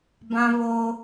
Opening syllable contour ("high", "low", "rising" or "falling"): high